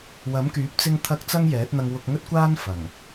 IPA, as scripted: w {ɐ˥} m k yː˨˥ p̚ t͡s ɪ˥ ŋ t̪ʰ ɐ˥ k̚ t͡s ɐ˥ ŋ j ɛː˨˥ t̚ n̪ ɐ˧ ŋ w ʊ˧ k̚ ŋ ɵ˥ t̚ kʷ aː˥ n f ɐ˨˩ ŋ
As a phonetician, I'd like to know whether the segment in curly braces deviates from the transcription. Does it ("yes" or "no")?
yes